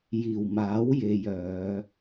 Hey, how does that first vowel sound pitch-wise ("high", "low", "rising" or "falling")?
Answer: low